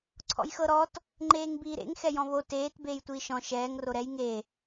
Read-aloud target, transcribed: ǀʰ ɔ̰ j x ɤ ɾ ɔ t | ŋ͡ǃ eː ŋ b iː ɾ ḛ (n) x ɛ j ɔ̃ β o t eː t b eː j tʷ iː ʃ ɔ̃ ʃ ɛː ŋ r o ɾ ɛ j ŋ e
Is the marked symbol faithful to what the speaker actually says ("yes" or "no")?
no